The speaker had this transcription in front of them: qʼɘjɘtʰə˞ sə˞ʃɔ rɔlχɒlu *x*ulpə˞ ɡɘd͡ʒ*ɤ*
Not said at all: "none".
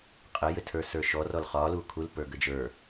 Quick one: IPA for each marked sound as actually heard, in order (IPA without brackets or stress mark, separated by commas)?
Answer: kʰ, ə˞